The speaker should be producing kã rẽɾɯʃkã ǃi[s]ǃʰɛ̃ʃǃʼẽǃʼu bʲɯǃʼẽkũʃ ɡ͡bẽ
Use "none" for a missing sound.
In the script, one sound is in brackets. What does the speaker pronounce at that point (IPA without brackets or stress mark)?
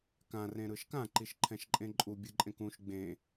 ʃ